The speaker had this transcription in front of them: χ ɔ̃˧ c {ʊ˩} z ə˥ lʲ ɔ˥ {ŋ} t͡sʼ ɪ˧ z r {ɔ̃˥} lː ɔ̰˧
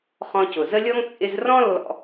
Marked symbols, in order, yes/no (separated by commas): yes, yes, yes